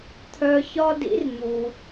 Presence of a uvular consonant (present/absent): absent